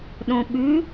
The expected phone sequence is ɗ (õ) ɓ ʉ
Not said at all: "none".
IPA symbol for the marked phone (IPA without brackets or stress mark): õ